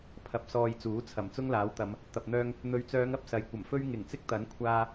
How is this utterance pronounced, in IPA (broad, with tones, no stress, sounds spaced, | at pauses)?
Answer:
pʰ ɐ˨ p̚ s ɔː˧ j t͡s uː˨˥ t͡sʰ ɐ˨˩ m t͡s ʊ˥ ŋ l aː˨˥ w t̪ ɐ˨˧ m | t̪ ɐ˨ p̚ n̪ œː˧ ŋ | n̪ ɵ˨ ɥ t͡s œː˨˧ ŋ ɐ˧ p̚ s ɐ˨ j kʷ ɐ˨˩ m f ɵ˥ ɥ ŋ ɪ˨˩ ŋ t͡s ɪ˥ k̚ t̪ ɐ˨˥ n kʷʰ aː˧